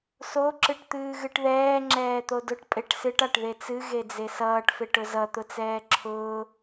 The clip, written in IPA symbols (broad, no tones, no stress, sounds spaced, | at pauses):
s o ǁ ɨ ʈ t̪ ɨː ɣ ɨ ʈ ð ɛː ŋ͡ǁ ɛː t̪ o d ʊ ʈ pʼ e ʈ s ɨ ʈ a ʈ ð e t͡s ɨ ɣ e d͡z e s ʌː ʈ f e ʈ ʊ z ʌ t̪ ʊ t͡s ɛː ǁʰ ʊː